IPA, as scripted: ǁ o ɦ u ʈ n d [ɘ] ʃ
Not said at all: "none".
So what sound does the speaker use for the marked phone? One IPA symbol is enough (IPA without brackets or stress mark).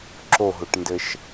ɘ